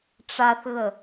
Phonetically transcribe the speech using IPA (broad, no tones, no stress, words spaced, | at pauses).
ʈ͡ʂaθɣə